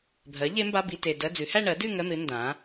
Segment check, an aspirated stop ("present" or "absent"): absent